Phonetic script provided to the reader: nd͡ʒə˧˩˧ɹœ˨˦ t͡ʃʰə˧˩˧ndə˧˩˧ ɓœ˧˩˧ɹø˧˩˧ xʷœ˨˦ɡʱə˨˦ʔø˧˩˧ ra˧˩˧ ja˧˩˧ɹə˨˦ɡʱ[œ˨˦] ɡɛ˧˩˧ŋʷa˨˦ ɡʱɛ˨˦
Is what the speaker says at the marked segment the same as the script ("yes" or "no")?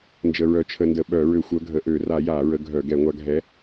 no